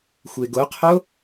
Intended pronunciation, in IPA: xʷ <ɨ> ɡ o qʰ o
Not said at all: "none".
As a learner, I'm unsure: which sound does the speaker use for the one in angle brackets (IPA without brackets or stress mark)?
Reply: e